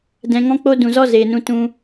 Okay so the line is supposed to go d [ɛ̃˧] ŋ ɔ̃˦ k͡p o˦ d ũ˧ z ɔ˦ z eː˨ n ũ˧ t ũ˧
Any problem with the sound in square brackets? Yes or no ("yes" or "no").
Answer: no